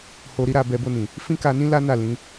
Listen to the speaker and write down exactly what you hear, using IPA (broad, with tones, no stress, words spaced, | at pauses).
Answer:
ho˧ɾi˦ɾa˧bɛ˧ bo˧nĩ˨ | fĩ˦ka˧nĩ˦ la˦na˦˨ lĩ˨˦